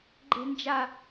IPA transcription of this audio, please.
ɡ͡ǃ e̤ n d͡ʒ a

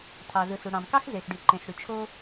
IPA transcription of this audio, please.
tʰ ɑ˩ z ɯ˩ s u˩ ɽ ɑ̃˩ m k ɑ˥ x z e˩ x ɖ y˩ ǃ ẽ˩ s ɽ y˩ t͡ʃʰ o˥

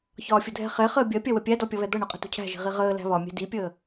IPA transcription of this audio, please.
ç ɒː fʲ ʊ dʱ ɛ̤ χ ɛ χ əː bʲ ɜ pʲ ɜ w ə pʲ æ d ɔ pʲ ʌ β ɛ d̪ ʌ ɳ ʊ qʼ ə̤ t ṳ cʰ æ̤ ʒ i̤ ʁ i ʁ əː l æ̤ β ɒ mʲ ɛ̤ d i pʲ əː

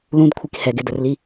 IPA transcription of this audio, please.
l ũ d kʷʰ i k h ɛ ɡ ɪ d ə r l i

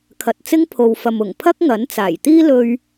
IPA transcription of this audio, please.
kʰ ɐ˨ t̚ t͡s ɪ˥ ŋ pʰ o˨ w f ɐ˨ m ʊ˨˩ ŋ pʰ ɐ˥ k̚ ŋ ɐ˨˥ n t͡s aː˨˩ j t̪ iː˥ l ɵ˥ ɥ

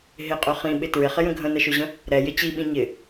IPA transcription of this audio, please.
ɦ ɪ qʼ ø χ ĩ ɓ ɪ t ɹ ɪ χ ɪ j ə̃ ɡʱ ə̃ n ə ʃ ø ʑ ə̃ | ɾ ɛ j ɪ t͡ɕ i ɓ ĩ ɲ ɪ

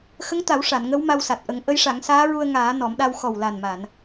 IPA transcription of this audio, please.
x ə˧˥ ŋ t̪ a˨˩˦ w ʂ a˨˩˨ n ŋ ə˧˥ w m a˧ w s a˨˩ t̚ ʔ ə˨˩˦ ŋ ʔ ə˧˥ j ʂ a˨˩˦ ŋ s aː˧˥ ɹ u˧ ə̯ ŋ aː˨˩˦ n ɔ˨˩˦ m ɗ a˧ w x ɔ˨˩ w l a˨˩ n m a˨˩˨ n

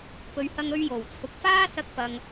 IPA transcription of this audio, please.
p ɵ˨˧ ɥ h ɐ˧ ŋ ɵ˧ ɥ j o˨˩ w t͡sʰ ʊ˨ k̚ f aː˥ s ɐ˧ k̚ p ɐ˨ ŋ

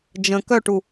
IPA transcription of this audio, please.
d͡ʒ ə̃ k œ ʈ u

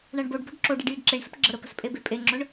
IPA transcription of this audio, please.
ɳ a ɳ b o ɖ b ɔ̤ ɖ ǁ o ɖ i ɖ j i ɖ ǁ e ɳ s ə̤ p ɡ͡ǁ ə ɾ ə p ə̤ s pʼ e b e pʼ e ŋ͡ǁ ʊ ɳ

